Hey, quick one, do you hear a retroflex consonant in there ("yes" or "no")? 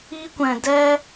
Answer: no